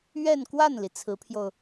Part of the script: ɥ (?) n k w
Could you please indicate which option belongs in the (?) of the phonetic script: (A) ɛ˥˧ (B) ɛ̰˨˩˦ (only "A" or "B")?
A